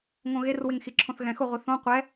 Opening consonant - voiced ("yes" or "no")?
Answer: yes